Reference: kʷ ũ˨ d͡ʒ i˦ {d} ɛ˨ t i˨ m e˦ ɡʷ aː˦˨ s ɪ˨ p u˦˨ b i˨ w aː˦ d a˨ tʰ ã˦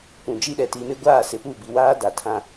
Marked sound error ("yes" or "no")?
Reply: yes